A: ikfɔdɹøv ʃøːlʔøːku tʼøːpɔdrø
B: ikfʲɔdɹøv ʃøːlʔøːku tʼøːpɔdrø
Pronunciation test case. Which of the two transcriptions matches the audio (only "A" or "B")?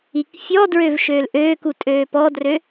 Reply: B